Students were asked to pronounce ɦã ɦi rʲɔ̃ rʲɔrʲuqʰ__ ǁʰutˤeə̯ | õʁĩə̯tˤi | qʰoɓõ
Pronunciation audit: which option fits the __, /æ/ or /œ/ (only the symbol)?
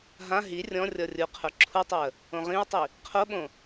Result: œ